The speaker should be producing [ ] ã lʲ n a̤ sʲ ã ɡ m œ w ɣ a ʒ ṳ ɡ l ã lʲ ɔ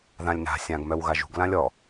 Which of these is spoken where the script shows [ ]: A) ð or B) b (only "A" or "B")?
A